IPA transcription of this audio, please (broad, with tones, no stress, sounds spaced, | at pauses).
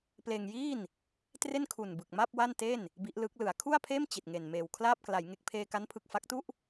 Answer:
p l eː˧ ŋ j iː˥˩ n | t r e˥˩ n kʰ u˨˩ n b ɯ˨˩ k̚ m a˥˩ p̚ w a˥˩ n t e˥˩ n | b i˦˥ ʔ l ɯ˦˥ k̚ l ɯ˩˦ a̯ kʰ u˥˩ a̯ pʰ eː˥˩ m t͡ɕ i˨˩ t̚ ŋ e˨˩ n m eː˨˩ w kʰ l aː˥˩ p̚ k l a˩˦ j ŋ e˨˩ k̚ pʰ eː˧ k a˦˥ n pʰ ɯ˨˩ k̚ f a˦˥ k̚ t u˥˩ ʔ